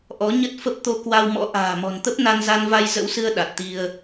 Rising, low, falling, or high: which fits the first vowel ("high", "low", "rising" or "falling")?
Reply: rising